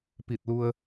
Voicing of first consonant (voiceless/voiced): voiceless